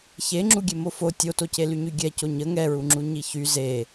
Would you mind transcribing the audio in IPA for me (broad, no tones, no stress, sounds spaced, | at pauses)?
ç e ŋ͡ǁ u ɡʲ e m o f o tʲ o t o c e l y ɲ y ɡʲ ɛ c o ɲ ə ŋ ɛ ɹ u ŋ͡ǁ u ɲ i ç y z e